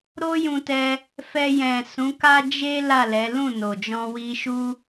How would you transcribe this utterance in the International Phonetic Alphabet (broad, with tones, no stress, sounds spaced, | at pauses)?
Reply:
ɾ o˦ j ũ˧ t ɛ˧ | f ɛ˧ j ɛ̃˨ s ũ˨˦ k a˦ d͡ʒ e˦ l a˦˨ l ɛ˨˦ l ũ˦˨ n o˨ d͡ʒ ɔ̃˧ w i˧ ʃ u˦